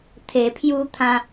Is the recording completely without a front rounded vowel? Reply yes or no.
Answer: yes